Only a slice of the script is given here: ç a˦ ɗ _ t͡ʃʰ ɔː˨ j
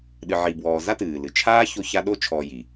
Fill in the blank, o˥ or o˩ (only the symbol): o˥